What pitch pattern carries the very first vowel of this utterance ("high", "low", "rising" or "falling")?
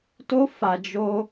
high